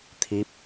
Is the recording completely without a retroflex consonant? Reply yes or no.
yes